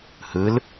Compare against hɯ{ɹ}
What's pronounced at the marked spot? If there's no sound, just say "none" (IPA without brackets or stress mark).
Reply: l